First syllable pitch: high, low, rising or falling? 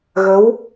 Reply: rising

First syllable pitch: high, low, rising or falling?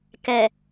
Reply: low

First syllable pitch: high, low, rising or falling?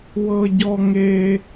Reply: high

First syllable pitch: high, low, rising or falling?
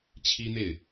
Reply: high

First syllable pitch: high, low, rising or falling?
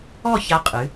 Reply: falling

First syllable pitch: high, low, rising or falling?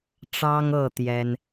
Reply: high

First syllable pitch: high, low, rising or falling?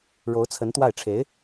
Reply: rising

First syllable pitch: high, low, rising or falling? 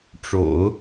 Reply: low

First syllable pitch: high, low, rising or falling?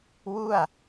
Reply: falling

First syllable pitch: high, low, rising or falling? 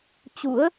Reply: rising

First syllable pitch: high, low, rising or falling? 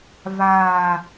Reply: falling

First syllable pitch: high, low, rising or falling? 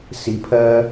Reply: low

